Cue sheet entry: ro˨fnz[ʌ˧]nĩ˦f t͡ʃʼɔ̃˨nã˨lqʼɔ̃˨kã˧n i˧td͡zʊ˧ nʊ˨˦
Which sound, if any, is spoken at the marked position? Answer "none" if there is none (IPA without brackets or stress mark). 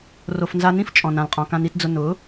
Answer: a˧